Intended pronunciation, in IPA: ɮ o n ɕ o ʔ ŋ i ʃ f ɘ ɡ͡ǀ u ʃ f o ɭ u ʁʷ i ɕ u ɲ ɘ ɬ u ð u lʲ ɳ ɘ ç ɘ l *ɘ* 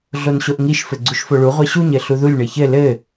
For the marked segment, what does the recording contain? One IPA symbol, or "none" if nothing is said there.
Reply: ɘ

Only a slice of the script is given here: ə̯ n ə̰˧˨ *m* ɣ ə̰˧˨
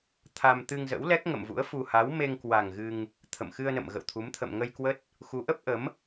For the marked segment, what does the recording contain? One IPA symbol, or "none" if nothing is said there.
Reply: m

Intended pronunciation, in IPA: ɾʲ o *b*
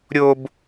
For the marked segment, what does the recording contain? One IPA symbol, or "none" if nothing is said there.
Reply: b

